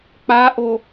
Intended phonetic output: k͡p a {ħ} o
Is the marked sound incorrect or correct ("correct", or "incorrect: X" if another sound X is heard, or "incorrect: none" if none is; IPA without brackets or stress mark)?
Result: incorrect: ʔ